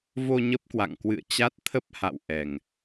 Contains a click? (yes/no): no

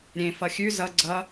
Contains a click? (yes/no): yes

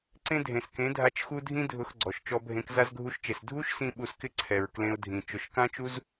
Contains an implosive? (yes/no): yes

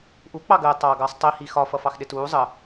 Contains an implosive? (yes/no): yes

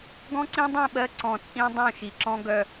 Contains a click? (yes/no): yes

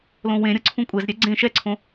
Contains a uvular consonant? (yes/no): no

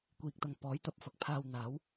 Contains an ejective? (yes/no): no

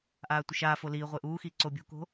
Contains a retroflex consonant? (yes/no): no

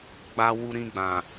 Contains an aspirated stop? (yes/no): no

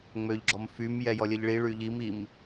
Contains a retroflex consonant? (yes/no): yes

